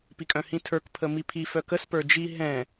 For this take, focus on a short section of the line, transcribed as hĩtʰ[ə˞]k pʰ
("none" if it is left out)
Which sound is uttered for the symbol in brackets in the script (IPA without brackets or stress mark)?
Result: ə˞